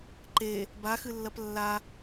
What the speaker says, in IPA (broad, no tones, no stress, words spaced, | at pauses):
ǃe | baxɨlːɐp lːa